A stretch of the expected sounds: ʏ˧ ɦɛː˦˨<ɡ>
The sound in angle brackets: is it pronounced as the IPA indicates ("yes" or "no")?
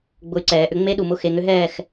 no